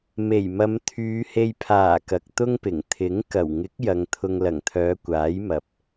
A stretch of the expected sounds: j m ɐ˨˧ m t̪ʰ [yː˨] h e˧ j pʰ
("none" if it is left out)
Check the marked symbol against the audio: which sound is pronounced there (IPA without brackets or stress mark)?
yː˨˧